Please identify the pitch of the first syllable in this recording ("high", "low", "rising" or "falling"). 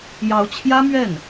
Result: rising